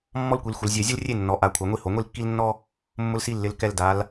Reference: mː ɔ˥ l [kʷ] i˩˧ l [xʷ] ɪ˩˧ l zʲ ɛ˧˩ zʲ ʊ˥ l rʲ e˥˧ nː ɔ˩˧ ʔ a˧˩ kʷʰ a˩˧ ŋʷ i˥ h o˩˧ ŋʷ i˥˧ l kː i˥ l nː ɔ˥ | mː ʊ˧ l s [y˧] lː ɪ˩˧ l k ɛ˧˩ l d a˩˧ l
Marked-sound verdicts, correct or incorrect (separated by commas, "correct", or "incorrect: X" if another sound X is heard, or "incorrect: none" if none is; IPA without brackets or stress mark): correct, correct, incorrect: i˧